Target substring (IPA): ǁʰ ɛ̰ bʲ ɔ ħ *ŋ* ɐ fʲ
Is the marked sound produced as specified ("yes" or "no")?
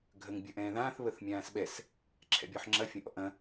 no